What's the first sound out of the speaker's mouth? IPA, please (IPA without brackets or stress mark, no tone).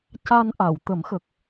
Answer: c